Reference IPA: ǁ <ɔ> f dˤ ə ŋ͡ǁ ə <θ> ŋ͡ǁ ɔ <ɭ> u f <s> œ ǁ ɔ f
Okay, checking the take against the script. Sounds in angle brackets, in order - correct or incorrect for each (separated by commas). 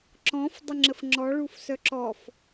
incorrect, incorrect, correct, correct